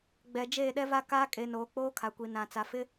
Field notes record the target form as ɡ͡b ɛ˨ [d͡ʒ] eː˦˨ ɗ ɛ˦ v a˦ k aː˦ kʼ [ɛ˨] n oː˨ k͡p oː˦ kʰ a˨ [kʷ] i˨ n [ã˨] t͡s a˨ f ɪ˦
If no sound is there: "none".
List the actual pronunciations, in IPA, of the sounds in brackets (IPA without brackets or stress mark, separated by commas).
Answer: d͡ʒ, e˨, kʷ, ã˨